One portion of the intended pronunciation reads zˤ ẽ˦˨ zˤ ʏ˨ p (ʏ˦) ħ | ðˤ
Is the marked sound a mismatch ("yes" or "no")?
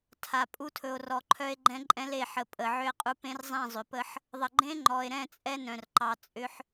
yes